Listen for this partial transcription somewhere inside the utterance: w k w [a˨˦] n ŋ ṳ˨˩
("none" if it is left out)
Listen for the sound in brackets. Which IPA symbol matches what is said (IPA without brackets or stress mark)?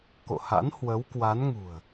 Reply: a˨˦